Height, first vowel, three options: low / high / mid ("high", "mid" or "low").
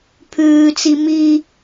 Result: high